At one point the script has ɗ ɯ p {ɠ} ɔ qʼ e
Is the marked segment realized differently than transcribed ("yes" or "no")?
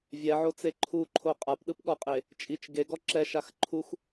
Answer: no